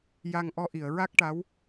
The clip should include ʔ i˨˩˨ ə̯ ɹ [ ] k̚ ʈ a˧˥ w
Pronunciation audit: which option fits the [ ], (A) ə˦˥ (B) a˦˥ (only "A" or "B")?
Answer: B